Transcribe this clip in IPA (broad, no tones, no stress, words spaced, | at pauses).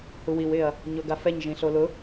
huwiw ɪɐ̯ | ɲoɡafɛɲ ʒĩɬolʊ